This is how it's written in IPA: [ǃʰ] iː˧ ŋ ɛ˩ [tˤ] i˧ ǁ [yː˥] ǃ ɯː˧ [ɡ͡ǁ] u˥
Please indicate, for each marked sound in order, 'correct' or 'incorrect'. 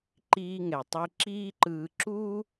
incorrect, correct, incorrect, incorrect

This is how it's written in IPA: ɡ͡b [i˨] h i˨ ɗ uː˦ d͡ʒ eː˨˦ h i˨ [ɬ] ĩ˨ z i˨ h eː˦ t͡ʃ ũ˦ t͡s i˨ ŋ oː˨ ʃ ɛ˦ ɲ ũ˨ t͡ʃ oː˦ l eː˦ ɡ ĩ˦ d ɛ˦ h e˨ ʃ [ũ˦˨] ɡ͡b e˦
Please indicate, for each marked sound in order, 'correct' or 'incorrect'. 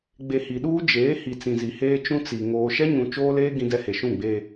incorrect, incorrect, correct

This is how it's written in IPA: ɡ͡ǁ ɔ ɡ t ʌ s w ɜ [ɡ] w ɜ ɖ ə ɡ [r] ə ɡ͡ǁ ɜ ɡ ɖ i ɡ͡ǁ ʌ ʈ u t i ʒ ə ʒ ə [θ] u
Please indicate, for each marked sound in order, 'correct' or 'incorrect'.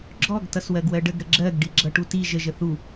correct, incorrect, correct

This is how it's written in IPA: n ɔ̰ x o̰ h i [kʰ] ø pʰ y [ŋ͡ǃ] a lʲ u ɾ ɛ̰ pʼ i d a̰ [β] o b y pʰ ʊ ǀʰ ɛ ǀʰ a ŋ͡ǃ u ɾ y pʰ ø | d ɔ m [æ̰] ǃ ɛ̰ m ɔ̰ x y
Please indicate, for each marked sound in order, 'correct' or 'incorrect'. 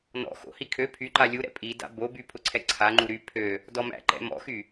correct, incorrect, incorrect, correct

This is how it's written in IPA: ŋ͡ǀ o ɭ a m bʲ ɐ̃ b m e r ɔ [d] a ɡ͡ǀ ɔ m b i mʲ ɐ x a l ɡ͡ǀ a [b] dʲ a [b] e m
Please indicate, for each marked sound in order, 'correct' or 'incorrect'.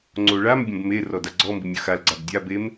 correct, correct, correct

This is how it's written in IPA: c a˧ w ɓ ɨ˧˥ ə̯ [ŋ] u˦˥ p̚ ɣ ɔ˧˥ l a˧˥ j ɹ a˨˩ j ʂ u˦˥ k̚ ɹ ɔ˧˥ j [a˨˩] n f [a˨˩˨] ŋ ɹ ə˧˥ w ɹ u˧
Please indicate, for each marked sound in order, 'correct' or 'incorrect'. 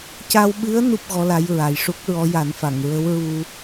incorrect, incorrect, correct

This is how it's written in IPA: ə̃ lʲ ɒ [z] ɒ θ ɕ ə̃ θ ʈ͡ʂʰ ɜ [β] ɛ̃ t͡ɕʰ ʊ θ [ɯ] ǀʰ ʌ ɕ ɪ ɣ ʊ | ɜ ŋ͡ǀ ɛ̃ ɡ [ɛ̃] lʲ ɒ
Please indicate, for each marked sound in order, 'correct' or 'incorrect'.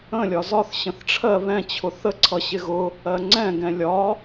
correct, correct, incorrect, correct

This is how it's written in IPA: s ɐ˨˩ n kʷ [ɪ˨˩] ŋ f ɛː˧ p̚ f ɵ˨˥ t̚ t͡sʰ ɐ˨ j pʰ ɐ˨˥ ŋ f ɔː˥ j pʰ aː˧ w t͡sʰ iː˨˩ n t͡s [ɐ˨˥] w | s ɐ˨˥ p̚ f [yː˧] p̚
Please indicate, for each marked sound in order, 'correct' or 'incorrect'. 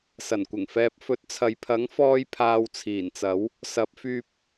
correct, correct, correct

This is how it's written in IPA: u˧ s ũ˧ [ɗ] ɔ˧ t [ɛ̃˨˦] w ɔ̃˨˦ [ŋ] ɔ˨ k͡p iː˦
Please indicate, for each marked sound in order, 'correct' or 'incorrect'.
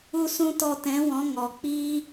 incorrect, correct, correct

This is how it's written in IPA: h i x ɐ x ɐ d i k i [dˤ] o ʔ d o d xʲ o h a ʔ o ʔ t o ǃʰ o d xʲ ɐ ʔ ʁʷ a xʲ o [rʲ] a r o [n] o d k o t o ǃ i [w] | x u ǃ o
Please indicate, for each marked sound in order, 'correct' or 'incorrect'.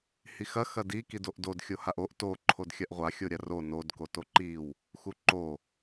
incorrect, incorrect, correct, correct

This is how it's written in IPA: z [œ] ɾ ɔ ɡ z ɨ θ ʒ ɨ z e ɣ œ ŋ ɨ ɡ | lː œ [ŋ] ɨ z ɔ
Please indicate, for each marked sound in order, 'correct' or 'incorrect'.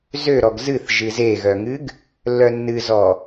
incorrect, incorrect

